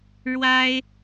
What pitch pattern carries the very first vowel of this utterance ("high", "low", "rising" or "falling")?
high